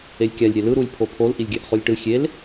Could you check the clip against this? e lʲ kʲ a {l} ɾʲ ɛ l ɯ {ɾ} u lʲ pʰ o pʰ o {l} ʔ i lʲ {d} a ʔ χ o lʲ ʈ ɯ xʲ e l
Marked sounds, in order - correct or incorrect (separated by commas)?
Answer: incorrect, correct, correct, incorrect